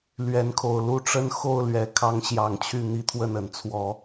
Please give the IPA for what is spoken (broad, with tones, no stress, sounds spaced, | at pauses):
l ɥ ɛ˨˦ n kʰ o˨˩ ʊ̯ l u˥˨ ʈ͡ʂ ə˦ n x o˥˨ ʊ̯ l ɥ ɛ˨˦ kʰ ɑ˦ ŋ ɕ j ɑ˨˦ ŋ t͡ɕʰ y˥˨ n̪ i˦ t̪ʰ w ə˥˨ n ə˨˩ n t͡sʰ w ɔ˨˦